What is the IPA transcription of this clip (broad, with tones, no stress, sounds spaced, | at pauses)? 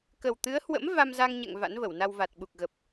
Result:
k ə˨˩ w t̪ ɨ˨˦ ə̯ h w ə̰˧˥ m v a˧ m z a˧ ŋ ɲ ɛ̰˧˨ ŋ v a̰˧˥ n v ə˧˩ w n a˧ w v a˨˩ t̚ ɓ u˨˩ k̚ ɣ ə˨˩ p̚